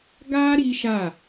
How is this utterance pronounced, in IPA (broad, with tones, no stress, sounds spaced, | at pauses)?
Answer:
ɡ a˦ ɾ i˦ ʃ a˦˨